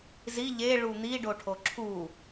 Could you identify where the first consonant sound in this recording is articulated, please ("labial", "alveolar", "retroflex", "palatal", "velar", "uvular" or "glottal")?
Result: alveolar